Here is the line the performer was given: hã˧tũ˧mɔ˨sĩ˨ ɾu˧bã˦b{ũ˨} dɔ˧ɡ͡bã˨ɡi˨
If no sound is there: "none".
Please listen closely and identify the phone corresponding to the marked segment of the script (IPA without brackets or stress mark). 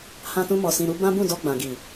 ũ˦˨